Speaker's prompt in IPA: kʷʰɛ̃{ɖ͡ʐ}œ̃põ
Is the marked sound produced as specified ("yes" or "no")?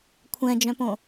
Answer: no